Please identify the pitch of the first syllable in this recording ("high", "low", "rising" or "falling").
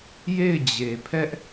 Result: falling